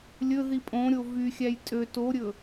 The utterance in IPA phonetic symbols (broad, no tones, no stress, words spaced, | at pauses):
lʲɵ ðipʼõɾʲo vyxʲæj tʼø toɾʲɵ